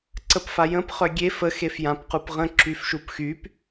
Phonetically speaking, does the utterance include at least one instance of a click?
yes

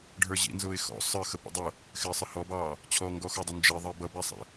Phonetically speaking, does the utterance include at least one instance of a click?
no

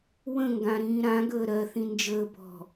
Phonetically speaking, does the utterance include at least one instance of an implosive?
no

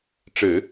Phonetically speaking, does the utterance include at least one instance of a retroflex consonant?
yes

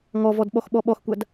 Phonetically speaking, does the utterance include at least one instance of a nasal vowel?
no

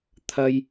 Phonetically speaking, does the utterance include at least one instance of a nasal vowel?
no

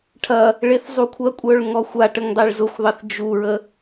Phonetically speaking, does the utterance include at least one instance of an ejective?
yes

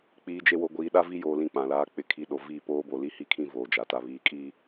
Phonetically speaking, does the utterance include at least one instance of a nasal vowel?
yes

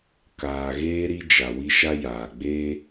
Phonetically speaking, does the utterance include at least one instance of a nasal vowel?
no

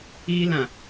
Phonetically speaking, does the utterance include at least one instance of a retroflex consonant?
no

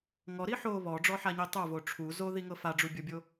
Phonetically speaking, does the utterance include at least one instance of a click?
no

